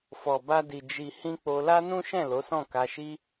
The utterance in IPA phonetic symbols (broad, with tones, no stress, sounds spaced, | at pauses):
f ɔ˨ b a˧ d i˨ d͡ʒ i˨ h ĩ˧ k͡p o˧ l a˦ n ũ˦ ʃ ɛ̃˦˨ l o˨˦ s ɔ̃˦˨ k a˧ ʃ i˦